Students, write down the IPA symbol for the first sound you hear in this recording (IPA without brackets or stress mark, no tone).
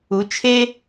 u